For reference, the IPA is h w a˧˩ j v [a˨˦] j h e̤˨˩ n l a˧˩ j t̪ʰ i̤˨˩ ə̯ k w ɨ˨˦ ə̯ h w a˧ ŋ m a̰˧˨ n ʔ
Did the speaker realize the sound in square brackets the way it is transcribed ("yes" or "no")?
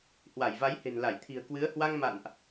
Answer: yes